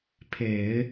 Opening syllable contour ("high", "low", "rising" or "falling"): low